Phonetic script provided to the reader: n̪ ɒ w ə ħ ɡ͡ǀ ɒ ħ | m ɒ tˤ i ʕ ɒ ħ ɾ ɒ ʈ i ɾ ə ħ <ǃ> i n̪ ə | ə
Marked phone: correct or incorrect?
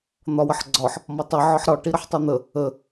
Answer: incorrect